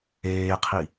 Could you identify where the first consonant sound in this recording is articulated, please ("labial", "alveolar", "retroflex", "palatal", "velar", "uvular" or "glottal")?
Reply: uvular